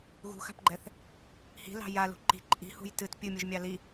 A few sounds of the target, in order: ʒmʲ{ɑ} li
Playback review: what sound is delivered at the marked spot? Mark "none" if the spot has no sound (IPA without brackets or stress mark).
ɑ